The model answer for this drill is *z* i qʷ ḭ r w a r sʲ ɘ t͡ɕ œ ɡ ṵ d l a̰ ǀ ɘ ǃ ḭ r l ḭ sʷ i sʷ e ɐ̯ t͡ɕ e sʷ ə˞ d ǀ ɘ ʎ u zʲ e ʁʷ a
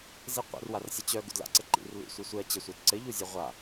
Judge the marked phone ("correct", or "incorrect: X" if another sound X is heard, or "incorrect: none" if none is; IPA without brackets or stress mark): correct